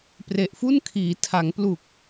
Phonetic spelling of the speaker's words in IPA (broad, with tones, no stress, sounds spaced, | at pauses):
p r e˨˩ ʔ f u˥˩ n kʰ iː˩˦ tʰ a˩˦ ŋ p l u˨˩ k̚